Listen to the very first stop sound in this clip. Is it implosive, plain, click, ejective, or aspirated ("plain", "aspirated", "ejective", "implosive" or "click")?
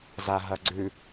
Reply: click